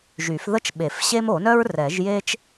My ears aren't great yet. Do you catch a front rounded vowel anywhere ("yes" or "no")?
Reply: yes